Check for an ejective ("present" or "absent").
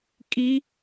present